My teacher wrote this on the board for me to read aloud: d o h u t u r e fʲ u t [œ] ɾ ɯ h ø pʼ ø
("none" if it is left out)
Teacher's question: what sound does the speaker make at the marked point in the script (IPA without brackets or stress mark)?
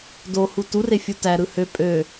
æ